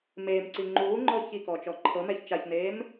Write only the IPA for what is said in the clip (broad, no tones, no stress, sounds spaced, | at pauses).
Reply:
m eː m ǀ i ŋ͡ǃ uː ŋ͡ǃ ɔ ç i k ɔ t͡ʃ ɔ ǃʰ ɤ m ɛ ç t͡ʃ a ç n eː m